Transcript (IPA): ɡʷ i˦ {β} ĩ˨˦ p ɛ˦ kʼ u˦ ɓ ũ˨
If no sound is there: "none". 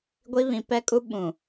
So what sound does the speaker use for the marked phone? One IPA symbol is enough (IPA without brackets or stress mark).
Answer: β